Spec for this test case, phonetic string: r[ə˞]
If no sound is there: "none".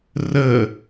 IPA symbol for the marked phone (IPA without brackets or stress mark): ə